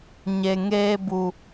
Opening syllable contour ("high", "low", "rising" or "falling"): low